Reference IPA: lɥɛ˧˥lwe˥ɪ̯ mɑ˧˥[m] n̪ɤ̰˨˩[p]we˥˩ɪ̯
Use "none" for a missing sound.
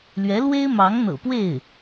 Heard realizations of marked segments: ŋ, p

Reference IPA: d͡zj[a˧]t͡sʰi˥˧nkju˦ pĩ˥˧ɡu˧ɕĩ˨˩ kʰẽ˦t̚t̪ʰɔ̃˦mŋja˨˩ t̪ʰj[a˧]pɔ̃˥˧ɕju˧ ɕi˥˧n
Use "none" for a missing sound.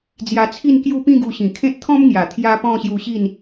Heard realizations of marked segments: a˧, a˦

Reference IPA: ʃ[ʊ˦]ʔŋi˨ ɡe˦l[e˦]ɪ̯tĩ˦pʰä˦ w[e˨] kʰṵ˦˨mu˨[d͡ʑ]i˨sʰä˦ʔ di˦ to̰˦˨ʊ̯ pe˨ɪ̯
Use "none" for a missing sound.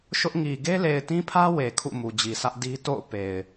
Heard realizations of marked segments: ʊ˦, e˨, e˨, d͡ʑ

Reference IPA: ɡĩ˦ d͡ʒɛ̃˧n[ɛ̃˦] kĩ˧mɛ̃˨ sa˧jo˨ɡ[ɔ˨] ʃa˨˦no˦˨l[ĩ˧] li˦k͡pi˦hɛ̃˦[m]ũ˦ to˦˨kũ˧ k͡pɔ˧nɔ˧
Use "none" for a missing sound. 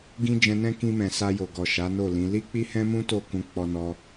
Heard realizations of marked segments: ɛ̃˦, ɔ˨, ĩ˨˦, m

